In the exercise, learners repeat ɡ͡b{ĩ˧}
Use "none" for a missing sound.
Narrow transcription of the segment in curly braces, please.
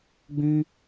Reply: ĩ˧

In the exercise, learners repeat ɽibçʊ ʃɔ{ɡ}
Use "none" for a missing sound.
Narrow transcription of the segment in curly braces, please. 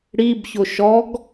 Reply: ɡ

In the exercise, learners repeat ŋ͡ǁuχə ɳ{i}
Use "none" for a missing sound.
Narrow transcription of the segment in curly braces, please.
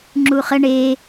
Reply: e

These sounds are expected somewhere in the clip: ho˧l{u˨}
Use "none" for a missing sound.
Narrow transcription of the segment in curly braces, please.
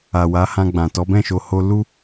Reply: u˦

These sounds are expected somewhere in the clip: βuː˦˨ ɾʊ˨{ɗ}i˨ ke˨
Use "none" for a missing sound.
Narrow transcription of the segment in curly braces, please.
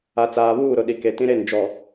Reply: ɗ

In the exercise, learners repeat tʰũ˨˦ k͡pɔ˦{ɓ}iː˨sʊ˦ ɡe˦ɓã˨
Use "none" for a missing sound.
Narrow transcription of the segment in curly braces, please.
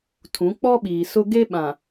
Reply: ɓ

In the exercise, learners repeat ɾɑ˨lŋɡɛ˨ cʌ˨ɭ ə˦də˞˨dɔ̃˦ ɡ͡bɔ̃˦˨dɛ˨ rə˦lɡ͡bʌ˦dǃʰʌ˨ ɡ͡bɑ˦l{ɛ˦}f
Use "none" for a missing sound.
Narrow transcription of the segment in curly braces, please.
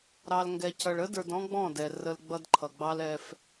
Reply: ɛ˦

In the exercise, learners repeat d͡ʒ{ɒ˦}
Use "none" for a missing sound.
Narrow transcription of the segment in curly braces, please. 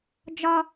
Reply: ɒ˦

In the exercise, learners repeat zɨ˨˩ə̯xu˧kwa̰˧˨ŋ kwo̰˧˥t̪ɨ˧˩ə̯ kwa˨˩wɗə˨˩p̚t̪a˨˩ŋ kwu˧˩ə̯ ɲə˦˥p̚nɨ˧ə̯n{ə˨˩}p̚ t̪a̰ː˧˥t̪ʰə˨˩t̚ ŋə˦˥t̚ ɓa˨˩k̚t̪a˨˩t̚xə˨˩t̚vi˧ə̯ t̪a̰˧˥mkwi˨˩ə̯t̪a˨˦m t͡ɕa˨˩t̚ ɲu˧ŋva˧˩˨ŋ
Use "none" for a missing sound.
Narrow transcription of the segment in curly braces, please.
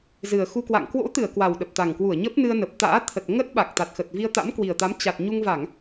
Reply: ə˨˩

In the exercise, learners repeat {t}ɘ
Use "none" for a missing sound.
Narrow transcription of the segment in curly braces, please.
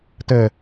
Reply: t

